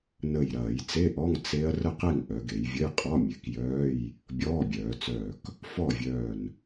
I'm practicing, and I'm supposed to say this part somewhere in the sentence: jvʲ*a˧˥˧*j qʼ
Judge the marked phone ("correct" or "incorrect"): incorrect